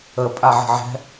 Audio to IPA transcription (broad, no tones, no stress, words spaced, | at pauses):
ə pʼaʕə̤ʕɛ̤